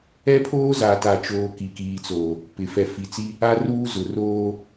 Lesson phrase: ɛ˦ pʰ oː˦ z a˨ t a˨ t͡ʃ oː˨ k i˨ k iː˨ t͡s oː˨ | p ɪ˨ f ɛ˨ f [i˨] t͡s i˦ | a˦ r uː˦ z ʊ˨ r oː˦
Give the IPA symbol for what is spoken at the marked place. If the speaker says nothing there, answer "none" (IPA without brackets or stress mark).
i˨